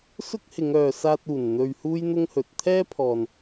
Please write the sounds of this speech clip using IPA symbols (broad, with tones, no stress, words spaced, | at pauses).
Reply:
sʊ˥k̚hɪ˨˧ŋœː˨ saː˧t̚uː˨˩n n̪ɵ˧ɥhuː˥jn̪ʊ˥ŋhɵ˨˥t̚ t̪ʰɛː˥pʰɔː˨n